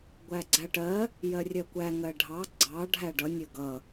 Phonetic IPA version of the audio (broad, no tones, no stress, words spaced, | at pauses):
ɡʷæɡ͡ǀæʈɜ | jɜrʲɜkʷæ ŋɜɖʱɑ ɡ͡ǀɑ ɖʱæɖʌ nʲəɡʌ